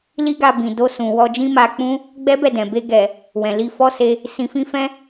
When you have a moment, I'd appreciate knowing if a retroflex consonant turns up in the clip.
no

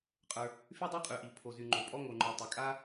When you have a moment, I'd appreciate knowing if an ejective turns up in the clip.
yes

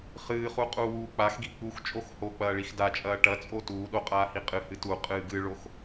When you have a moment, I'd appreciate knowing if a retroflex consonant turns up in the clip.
yes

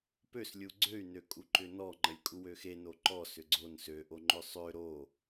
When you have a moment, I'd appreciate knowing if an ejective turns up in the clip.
yes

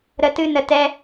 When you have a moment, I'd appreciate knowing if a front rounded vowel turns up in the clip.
no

